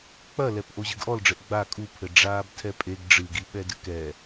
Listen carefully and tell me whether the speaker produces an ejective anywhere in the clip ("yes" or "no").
yes